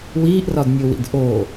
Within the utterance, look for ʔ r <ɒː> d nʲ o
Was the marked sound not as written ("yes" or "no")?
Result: yes